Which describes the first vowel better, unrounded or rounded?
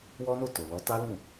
rounded